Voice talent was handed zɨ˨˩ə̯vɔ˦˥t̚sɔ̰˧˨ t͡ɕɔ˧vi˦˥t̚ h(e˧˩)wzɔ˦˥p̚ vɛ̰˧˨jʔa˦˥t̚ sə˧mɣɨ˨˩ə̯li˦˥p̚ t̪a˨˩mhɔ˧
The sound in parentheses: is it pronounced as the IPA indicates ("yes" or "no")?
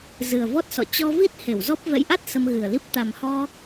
yes